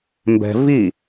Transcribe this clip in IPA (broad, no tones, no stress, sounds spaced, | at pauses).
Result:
m b ɛ̤ v i